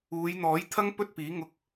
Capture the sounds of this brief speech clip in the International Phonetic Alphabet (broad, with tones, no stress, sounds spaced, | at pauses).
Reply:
uː˨˧ j n̪ ɔː˨˥ j t̪ʰ ɐ˥ ŋ p ɵ˥ t̚ p iː˨˥ ŋ ʊ˧ k̚